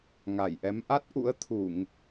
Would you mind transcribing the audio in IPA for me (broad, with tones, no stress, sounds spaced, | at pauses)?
ŋ a˧˩ j ʔ ɛ˨˦ m ʔ a˦˥ t̚ ʔ ṵ˧˥ ə̯ t̪ʰ u˧˩˨ ŋ